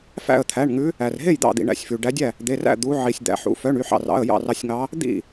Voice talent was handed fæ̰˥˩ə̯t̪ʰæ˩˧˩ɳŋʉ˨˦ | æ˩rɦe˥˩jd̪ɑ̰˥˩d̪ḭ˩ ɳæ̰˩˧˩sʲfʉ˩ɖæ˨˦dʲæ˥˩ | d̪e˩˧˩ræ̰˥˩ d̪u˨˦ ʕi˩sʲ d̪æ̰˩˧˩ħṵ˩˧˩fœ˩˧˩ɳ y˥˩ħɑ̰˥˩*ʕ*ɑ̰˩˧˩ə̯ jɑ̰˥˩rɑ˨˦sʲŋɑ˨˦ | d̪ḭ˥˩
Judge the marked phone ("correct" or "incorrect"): incorrect